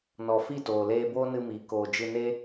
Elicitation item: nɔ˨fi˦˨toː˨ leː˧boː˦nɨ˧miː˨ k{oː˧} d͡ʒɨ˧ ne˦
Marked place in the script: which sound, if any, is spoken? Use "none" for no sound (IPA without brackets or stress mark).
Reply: oː˧